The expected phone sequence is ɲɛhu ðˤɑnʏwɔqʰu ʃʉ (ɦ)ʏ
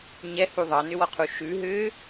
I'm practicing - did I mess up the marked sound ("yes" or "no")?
no